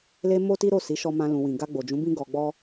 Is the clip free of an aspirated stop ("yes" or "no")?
yes